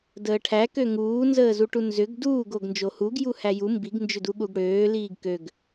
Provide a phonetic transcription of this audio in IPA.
dəːʈʰækø ŋuːnzəːzuʈu nzʏɡ duːɡoɡ nd͡ʒohuɡ juhæju mbiɡnd͡ʒʏdu ɠuɡɽøː liːɡkøɡ

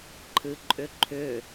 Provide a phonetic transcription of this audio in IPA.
ǃʰɨǃʼʏǃʰʏ

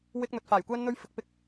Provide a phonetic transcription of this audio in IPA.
wɪ˧k̚n̪ɵ˨t̚ faː˨˩jkʷɛː˧nn̪ɵ˧ɥ fɪ˧k̚pɪ˥k̚

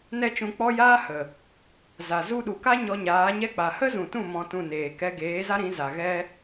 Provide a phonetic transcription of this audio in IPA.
nɛ˦t͡ʃũ˧k͡pɔ˦ jaː˦hə˨ | za˨ zu˧ɗu˨ka˦ ɲɔ˧ɲaː˨˦ɲɛ˦k͡pa˨ hə˦zũ˨tũ˦˨ mɔ̃˧tũ˦˨neː˨kɛ˦ ɡeː˨˦za˦ɾĩ˨˦ za˨ɣɛ˦

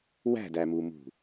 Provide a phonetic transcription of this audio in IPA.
wæ̤dæmumṳ

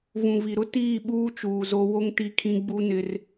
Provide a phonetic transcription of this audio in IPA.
vũ˨vi˨ɾʊ˦ tiː˦˨ ɓuː˦t͡ʃuː˨ zo˦ wo˦ŋti˦kʰĩ˦ ɡ͡bu˦nɪ˦r

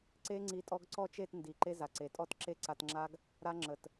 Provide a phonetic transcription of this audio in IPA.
ǀe˦ŋ͡ǀi˧ tʼɔ˧ɡǀɔ˦˨t͡ʃe˦˨t ndi˨ǃe˦za˨ǀe˨ tʼɔ˦tǁe˦ǀa˧tŋ͡ǁa˦ɡ | ɾa˦ŋ͡ǁə˨t

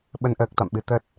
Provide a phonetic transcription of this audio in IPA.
ɓə˧n ʔəː˦˥k̚t̪a̰˧˨mɓɨ˧ t̪ə˦˥t̚

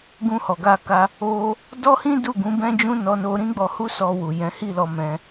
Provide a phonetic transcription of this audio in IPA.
ɡũ˧hɔ˨ɡa˧ka˧ | o˧ | dɔ˦hĩ˦ du˦˨ɡũ˨˦bɛ̃˦d͡ʒũ˦ nɔ˧no˧ɾĩ˦ɡ͡bɔ˧ hu˦sɔ˧wu˨ jɛ̃˨˦hi˦˨ lɔ˧mɛ̃˧

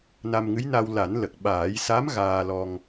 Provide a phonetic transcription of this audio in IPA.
na˧mŋɨ˧˥jna˧w la˨˩˦nlə˨˩k̚ɓaː˨˩˦jsa˧˥m ɣaː˧lɔ˧ŋ

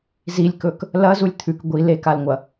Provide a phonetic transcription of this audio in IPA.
zilʲkɵk | lɐzulʲ t̪ʰʉk ɡʷi lekalŋʷɐ

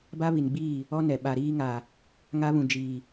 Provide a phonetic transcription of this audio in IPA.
ba˦βi˨nɡ͡biː˦˨ | ɔ˦nɛ˨ ɓa˨ ɾiː˦ŋa˨ | ŋa˦βũ˨ d͡ʒiː˨

